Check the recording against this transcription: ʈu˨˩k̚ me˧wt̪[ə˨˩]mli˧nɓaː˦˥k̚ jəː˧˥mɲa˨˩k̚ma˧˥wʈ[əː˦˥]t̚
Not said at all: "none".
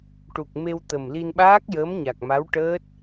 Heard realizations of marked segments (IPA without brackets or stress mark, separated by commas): ə˨˩, əː˦˥